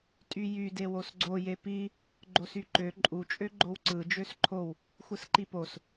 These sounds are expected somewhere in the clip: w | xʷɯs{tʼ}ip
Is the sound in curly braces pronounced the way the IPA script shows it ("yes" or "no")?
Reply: no